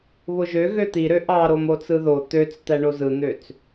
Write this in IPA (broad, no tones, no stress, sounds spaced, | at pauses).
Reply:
β o ʒ ø ɣ ø t̪ i ɾ ø ʔ ɑ ɾ o m o t͡s ɯ ð o t̪ ø t͡s t̪ æ ɳ o z ɯ n̪ ø t͡s